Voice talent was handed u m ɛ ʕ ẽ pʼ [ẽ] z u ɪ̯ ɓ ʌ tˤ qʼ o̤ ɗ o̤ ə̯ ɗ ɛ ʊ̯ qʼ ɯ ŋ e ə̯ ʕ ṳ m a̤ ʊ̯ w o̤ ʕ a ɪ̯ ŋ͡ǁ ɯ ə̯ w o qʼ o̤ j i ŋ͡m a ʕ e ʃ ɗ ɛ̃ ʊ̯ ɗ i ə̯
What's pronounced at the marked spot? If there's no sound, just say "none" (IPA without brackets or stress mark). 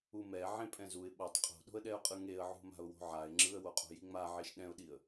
ɛ̃